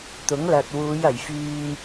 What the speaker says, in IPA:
t̪ʊ˨˥ŋlɐ˨t̚ wuː˨˧jɐ˨˩jfyː˧m

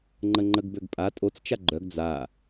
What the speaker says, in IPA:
ŋ͡ǃəŋ͡ǃəɡbøɡpʼa tʼot͡s t͡ʃaɡ͡ǃœɡ d͡za

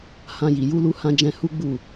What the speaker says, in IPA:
hã˧ji˨ ju˧lu˧hã˧d͡ʒɛ̃˧ hu˦ɡ͡bu˦˨

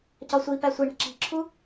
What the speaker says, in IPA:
cɒsʷipæ sʷiɳe̤ ǁi̤ǁʰu

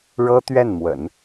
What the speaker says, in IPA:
ɻɤ˥t̪ɥɛ˥˩nmwə̰˨˩˦n

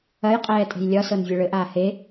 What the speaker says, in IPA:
ɐjqʼɛː tʼe̤jlʲɒsɤn vʲeɭɘʔaː he

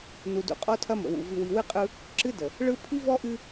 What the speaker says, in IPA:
nu˨dṵ˨qʼɔ˦tʰɐ˦ mə̰˨wṵ˨ vɨ˨wi˨wɨ˦qʼɯ˦ | ǁɨ˦də˨ | ɭɯ˦ pʰi˦vɔ˦ʔɨ˦

